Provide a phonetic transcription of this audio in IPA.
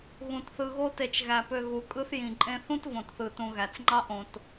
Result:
ɣ ũ˩ t θ ɯ˨ ɣ o˦ t e˨ t͡ʃ ɣ æ˩ p ø˨ ɣ u˩ kʼ ɯ˦ θ j ĩ˩ ǃʼ ẽ˦ θ ũ˥ t v õ˨ t θ ɯ˨ t ũ˨ ɣ æ˩ t͡s ŋ͡ǃ ɑ˦ ʔ õ˨ t

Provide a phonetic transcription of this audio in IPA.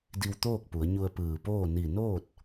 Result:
d i˧ w t̪ oː˥˨ k̚ p u˩˧ ə̯ ɲ u˧ ə̯ p ɯː˧˩ p oː˥˨ n i˧˩ n oː˥˨ t̚

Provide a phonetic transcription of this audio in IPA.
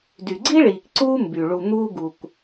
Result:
d y˩ ɡ͡ǀ i˥ ɭ iː˩ k ǀ uː˥ m b y˩ ɭ u˩ n̪ uː˧ ɡ u˩ k

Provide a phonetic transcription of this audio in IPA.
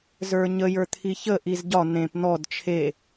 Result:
z ə˞ ɲ ə j ə˞ t̪ʰ i ç ə ʔ i z ɟ ɒ n̪ ẽ p n̪ ɔ d t͡ʃʰ e

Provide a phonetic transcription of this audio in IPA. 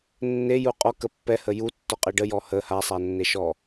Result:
nː e j u qʼ ɔ k ə pː ɛ h ə j u tː ɔ qʼ e ɖ ə j ɔ h ə h a sˤ a nː e ʃ ɔ

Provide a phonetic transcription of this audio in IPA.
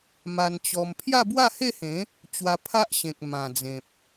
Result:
m a˧ n t͡ɕ ɔ˧ m pʰ j a˥˧ b w a˥˧ h e˥˧ h ẽ˨˦ | t͡ɕ w a˧ pʰ a˦ ʔ ɕ ẽ˨ k̚ m ã˨˩ d͡z ẽ˨ p̚

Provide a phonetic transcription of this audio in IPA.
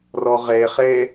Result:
r ɔ ʁ e χ e

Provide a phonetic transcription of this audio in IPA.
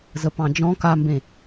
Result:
z ə p ɑ̃ d͡ʒ ɔ̃ k a m b ẽ

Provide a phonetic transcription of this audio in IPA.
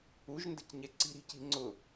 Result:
u ʒ n d ə̤ c ɲ ɛ ǀ i̤ ɾ i̤ c i̤ ŋ͡ǀ ʊ

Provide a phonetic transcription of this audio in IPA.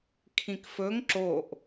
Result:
kʰ ĩ k f ɵ ŋ ǁ o ʔ

